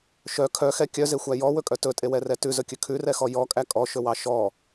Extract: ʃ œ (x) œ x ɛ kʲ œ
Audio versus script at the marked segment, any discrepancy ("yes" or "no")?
yes